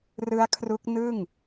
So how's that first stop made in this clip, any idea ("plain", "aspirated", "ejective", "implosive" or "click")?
aspirated